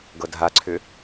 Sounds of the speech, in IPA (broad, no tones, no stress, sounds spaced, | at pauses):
ɡ ɤ dʱ a ǀʰ ʏ